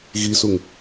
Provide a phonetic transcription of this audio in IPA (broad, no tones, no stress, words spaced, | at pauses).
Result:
ɣisuŋ